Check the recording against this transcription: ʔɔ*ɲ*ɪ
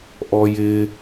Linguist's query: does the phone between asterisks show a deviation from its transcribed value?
yes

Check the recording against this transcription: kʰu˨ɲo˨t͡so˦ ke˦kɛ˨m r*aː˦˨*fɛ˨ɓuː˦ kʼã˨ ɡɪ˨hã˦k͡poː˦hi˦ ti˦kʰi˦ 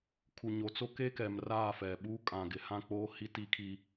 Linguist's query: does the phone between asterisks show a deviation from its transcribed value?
no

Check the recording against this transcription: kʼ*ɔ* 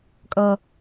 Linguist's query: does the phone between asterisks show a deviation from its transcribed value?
yes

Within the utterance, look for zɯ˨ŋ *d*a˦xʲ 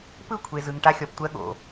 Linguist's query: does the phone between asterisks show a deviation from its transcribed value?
yes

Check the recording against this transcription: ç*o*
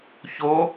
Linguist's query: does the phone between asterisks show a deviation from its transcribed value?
no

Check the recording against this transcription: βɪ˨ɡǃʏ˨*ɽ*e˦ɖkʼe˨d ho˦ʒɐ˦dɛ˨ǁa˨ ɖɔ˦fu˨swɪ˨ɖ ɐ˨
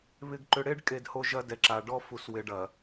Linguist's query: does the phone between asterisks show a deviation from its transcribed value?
no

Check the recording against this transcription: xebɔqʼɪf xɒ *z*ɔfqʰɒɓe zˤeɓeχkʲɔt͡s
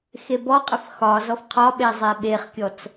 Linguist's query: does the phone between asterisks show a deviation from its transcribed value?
no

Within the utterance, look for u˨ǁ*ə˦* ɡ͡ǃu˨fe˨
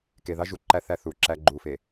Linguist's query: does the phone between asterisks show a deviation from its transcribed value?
yes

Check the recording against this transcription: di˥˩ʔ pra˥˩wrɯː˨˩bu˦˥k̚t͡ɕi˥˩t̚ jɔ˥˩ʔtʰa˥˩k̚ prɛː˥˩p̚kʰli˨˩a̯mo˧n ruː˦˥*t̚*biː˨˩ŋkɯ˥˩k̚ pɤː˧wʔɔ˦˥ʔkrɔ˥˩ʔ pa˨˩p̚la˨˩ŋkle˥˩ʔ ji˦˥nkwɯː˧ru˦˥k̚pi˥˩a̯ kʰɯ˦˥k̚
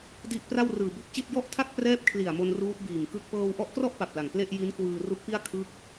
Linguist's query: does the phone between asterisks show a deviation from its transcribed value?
no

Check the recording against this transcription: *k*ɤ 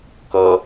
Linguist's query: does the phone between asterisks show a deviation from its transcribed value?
no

